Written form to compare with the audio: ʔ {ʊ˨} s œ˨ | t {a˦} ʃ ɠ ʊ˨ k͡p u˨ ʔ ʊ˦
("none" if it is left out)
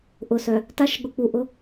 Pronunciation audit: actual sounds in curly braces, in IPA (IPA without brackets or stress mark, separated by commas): ʊ˨, a˦